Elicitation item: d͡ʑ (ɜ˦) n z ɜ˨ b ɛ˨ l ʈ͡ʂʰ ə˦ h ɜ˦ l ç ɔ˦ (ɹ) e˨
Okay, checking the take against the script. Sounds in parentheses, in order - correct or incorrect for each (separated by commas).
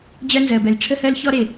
correct, incorrect